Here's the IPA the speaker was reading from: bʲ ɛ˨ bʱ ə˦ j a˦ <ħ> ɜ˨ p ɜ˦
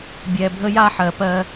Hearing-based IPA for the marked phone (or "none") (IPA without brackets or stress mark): ħ